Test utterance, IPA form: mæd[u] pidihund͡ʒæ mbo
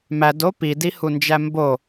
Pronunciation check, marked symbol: incorrect: o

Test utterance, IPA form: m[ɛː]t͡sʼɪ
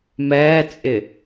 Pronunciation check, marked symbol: correct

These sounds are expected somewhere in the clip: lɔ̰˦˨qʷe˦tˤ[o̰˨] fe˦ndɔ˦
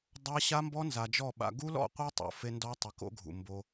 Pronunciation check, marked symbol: correct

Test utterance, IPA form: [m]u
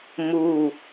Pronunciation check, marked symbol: correct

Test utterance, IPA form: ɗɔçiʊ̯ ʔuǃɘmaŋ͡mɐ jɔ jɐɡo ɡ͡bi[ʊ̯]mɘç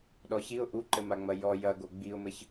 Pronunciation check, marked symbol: correct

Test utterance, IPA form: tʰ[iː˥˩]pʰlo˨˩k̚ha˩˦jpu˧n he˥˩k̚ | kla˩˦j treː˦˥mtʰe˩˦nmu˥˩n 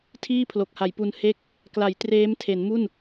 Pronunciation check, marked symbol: correct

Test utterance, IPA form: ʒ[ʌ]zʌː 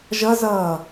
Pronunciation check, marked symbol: correct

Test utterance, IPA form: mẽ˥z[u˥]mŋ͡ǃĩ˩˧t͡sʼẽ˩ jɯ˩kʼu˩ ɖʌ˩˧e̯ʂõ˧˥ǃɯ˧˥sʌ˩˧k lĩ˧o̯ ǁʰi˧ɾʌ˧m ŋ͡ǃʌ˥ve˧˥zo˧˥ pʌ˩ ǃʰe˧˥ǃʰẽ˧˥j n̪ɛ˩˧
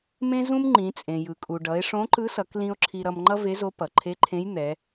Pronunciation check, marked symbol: incorrect: ũ˥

